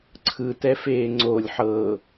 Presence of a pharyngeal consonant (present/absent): present